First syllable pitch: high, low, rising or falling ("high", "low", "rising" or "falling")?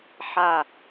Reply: falling